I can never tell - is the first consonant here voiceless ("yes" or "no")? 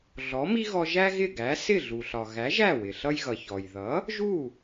no